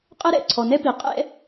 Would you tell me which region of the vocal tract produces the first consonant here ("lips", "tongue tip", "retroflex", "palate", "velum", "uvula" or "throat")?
uvula